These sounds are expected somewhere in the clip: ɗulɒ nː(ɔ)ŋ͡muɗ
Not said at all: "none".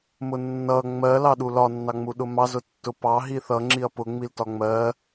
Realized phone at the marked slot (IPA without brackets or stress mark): ɑ